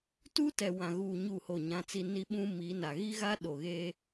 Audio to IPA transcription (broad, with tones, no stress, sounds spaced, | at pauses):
t uː˦ t ɛ˨ w ã˨ ɣ uː˨ ɲ u˦˨ h o˦˨ ɲ ã˦ t͡s i˦ n i˦ ɓ ũ˦ m i˨˦ n a˨ ɣ i˦ ɣ a˦ ɗ o˨ ɣ e˦